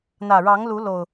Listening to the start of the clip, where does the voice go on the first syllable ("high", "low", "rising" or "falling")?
low